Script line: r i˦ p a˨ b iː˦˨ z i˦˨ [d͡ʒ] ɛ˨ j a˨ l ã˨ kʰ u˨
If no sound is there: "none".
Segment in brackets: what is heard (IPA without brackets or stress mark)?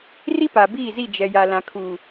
d͡ʒ